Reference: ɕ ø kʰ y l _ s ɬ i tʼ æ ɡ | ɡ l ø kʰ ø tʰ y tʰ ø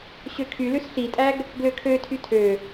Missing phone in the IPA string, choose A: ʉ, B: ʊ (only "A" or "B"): A